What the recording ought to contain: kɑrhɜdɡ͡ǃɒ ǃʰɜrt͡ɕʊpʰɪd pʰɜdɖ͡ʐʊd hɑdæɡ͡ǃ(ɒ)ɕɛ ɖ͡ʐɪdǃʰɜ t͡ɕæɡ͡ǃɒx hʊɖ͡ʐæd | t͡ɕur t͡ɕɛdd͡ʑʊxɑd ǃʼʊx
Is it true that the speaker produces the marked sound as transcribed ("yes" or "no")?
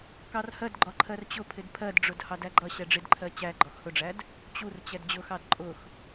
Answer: no